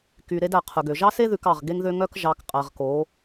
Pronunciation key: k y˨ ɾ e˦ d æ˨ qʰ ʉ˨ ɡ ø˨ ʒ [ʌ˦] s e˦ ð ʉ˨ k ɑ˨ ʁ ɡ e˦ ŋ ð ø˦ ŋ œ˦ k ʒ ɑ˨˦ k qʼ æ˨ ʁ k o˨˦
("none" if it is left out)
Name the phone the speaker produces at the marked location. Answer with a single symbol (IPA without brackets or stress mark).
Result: ɑ˦